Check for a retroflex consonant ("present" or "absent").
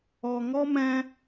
absent